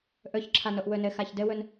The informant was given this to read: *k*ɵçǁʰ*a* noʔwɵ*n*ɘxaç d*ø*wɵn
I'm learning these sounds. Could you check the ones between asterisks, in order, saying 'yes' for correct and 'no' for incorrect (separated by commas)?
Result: no, yes, yes, no